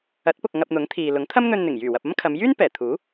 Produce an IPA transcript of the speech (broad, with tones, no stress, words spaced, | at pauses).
ɐ˨˥t̚pʊ˨k̚ ŋɐ˧p̚n̪ʊ˨˥ŋt̪ʰiː˨ lʊ˨˥ŋt̪ʰɐ˥mn̪ɵ˧nn̪ɪ˨˩ŋ jyː˨˩wɐ˨p̚ɐ˥m kʰɐ˨˧mjyː˥n pɛː˨˩ t̪ʰuː˨˥